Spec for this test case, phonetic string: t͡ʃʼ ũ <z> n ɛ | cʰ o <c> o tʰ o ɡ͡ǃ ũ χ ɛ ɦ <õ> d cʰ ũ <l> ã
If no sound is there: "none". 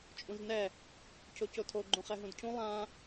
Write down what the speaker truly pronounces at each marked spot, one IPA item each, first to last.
z, c, ũ, lˠ

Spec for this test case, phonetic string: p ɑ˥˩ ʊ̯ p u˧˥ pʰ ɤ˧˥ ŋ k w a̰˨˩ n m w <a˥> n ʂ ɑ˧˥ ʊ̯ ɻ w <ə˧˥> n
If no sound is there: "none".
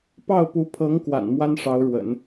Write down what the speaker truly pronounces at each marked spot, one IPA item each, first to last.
a˥, ə̰˨˩˦

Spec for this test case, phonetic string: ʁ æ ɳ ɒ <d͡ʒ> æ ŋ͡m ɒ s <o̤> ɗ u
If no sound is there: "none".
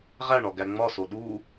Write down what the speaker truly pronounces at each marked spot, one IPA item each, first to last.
ɡ, o

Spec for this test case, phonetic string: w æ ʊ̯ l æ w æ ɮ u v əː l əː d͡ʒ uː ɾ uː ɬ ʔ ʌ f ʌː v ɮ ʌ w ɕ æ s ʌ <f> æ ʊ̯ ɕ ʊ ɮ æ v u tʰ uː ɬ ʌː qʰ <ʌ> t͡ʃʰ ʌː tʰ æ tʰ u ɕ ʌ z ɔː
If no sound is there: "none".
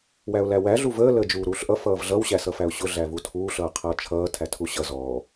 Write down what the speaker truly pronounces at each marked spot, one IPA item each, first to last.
f, ʌː

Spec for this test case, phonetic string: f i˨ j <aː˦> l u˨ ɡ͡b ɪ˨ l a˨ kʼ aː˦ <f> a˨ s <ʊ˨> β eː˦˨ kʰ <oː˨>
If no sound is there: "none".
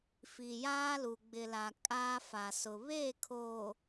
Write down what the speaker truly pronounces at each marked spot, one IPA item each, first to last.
aː˦, f, ʊ˨, oː˨

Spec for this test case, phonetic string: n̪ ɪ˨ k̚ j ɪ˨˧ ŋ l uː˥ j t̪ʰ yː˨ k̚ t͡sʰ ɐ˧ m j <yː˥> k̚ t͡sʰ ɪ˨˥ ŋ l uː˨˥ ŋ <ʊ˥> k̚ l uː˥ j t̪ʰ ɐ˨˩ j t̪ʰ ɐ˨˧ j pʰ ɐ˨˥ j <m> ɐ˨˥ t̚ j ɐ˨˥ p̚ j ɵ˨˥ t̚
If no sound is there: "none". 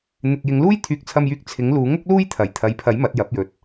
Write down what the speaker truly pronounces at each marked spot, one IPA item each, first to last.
yː˧, ʊ˥, m

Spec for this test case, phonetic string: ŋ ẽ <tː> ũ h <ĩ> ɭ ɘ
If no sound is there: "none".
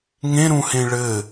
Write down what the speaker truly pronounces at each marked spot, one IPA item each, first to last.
ɾ, ẽ

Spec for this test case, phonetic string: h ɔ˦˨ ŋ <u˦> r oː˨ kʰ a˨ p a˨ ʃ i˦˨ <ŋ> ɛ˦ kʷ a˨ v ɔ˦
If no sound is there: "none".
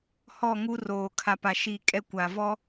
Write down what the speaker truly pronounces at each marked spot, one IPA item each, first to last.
u˦, kʼ

